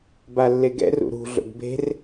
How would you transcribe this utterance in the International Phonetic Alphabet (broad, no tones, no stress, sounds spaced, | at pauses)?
b a lː e ɡ ɛ̰ r ṵ ɾ ṳ ɮ o̰ ɡ b e̤ r